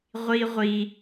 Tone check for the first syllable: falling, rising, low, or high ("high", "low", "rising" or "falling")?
high